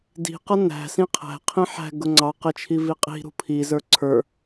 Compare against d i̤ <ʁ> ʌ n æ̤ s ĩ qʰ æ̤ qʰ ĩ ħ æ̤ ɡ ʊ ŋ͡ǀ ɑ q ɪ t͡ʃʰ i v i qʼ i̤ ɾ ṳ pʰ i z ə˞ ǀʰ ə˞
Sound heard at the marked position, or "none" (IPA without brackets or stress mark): q